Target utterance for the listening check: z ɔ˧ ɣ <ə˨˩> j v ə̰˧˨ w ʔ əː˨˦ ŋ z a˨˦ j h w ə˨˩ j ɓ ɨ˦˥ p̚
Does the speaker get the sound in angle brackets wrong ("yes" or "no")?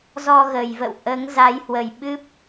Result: no